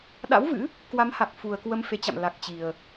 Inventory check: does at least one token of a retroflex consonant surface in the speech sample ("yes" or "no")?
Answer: no